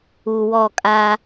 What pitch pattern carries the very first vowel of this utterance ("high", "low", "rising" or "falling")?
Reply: low